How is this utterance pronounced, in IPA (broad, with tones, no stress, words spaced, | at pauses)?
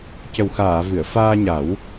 cə˨˩wxaː˨˩˨ vɨ˨˩˨ə̯faː˧ɲa˨˩˦w